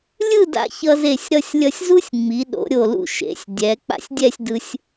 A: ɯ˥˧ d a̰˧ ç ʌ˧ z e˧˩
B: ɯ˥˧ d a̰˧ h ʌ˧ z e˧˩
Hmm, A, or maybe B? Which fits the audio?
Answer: A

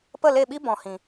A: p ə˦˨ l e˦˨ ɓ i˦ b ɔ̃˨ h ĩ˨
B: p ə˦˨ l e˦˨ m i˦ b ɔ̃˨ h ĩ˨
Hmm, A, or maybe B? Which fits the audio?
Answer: A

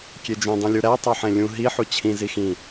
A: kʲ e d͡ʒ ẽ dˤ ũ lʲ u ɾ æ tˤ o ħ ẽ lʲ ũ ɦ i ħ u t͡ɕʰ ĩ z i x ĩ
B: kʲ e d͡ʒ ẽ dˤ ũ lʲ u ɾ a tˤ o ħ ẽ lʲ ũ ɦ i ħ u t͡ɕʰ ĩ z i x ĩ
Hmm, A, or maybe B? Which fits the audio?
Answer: A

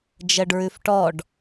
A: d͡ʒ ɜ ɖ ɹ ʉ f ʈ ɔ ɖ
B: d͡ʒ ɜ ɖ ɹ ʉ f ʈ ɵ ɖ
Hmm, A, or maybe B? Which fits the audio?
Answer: A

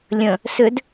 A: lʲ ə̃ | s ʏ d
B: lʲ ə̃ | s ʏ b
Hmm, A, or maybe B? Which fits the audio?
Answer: A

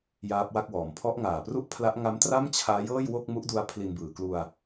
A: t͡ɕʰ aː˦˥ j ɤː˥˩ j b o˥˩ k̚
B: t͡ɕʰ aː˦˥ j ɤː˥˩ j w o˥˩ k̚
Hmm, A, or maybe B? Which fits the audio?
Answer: B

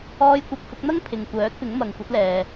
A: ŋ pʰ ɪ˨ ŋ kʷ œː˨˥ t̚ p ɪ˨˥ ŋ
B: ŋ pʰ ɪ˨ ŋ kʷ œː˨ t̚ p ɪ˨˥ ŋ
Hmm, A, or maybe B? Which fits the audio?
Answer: A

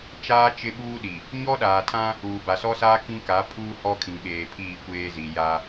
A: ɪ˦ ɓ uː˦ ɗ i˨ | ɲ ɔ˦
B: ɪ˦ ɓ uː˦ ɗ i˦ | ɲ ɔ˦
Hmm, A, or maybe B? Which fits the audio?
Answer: A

